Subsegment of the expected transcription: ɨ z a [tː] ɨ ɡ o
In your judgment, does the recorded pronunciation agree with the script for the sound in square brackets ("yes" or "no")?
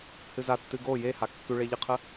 yes